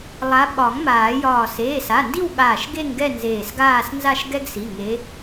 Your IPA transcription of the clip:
lˠ a˨˦ ɓ ɒ˨˩˦ ŋ m aː˨˩˦ j ɒː˧˩ s eː˩˧˩ s a˩˧˩ n d i˥˧ w ɠ aː˧˩ ʃ ɡ e˥˧ ŋ ɡ ɛ˥˧ n z eː˧˩ s ɡ aː˥˧ s n z a˥˧ ʃ ɡ ɛ˥ ɡ s i˩˧˩ ŋ e˨˦

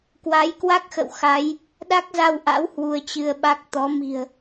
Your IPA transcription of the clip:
k w a˨˦ j k w a˦˥ k̚ x ə̰˧˨ w x a˨˦ j | ɗ a˦˥ k̚ z a˧ w ʔ a̰˧˥ w h w u˧ ə̯ t͡ɕ ɨ˧ ə̯ ɓ a˦˥ k̚ t̪ ɔ˨˦ m i̤˨˩ ə̯

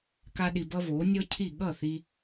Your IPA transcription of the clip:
k a˥ ɗ i˧ b ʌ˥ β o˩˥ nʲ ɔ˥ cʰ i˥˩ ɠ ʌ˥˩ θ i˧

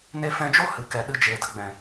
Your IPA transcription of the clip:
n e˧ f ɛ̃˧ d͡ʒ o˦ h ɨ˨ k ɛ˨ ɗ ɨ˧ d͡ʒ eː˨ d ə˧ ɡ͡b ɛ̃˨

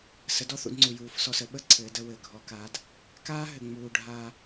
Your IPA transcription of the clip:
s ə˩˧ d ɔ˥ θ ṵ˩˧ d ŋ͡ǀ u˩ j uː˩˧ f s ɔ˧ s ə˩˧ ɓ ə˥ ǀʰ ɘː˩˧ d ə˧ w ɘː˩ ɡʱ ɔ˩˧ k aː˩˧ d | k aː˥ ɦ ɘ˩ ŋ͡m uː˩ ɖʱ aː˧

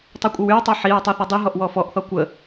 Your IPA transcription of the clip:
tˤ i kʷʼ ə w y w tˤ o ħ i ɹ tˤ o θ ɔ dˤ i ɦ ɔ ʔ w ɔ f ɔ ʔ θ ɔ kʷ ə

